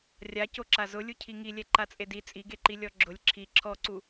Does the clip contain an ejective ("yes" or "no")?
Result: yes